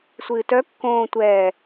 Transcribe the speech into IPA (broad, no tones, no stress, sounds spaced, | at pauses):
sʷ ɨː t œ kː õː tʷ ɛː